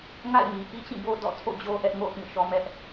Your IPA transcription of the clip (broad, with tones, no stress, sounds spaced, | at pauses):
ŋ a̰˦˨ ɪ̯ m i˨ ʔ i˦ t͡ɕ ĩ˦˨ b o˦ d ɔ̰˦˨ tʰ o̰˦˨ d͡ʑ o˦ ʔ ɛ˦ ʔ ŋ o̰˦˨ ʊ̯ p ĩ˦˨ ʃ ɔ˦ m ɛ˦ ʔ